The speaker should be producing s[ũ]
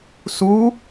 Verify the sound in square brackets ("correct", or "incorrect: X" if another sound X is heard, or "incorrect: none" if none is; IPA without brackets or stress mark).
incorrect: u